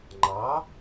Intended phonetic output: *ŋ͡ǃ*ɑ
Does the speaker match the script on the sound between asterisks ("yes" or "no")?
yes